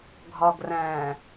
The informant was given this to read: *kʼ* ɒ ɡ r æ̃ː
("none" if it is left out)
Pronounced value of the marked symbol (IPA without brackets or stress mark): ɡʱ